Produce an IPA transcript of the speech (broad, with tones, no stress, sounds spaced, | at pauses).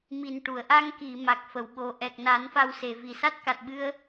m i˨˩ n ʈ u˨˩˨ ə̯ ʔ a˧ ŋ k i˨˩˨ m a˨˩ k̚ f ə˨˩˨ w ɓ o˨˩ ʔ ɛ˨˩ k̚ n a˨˩˦ n f a˧ w s e˨˩˨ v i˨˩ s a˦˥ t̚ k a˨˩ t̚ ɓ ɨ˧ ə̯